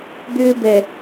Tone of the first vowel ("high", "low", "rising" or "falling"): high